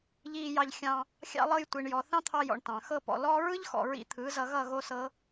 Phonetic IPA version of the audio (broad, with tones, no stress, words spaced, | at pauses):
ʎiː˧ jɑ˧ʎ xʲɑ̃˧ | xʲɑ̰˧lˠɤ˧jtʷi˨ɳjɔ˨ θɑ̃˦t̪ʰɑ˧jɔ̰˨ɳ tɑ̃˨ xɤ˧pɔ̰˨ lɔː˦ ɹɯ˦ʎxɔ̰˨ ɹḭ˧t̪ʰɯ˨˦zʌ˧ɣʌ˦˨ ɣo˦sɤ˦